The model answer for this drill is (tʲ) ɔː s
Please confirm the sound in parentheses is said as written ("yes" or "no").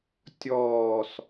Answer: yes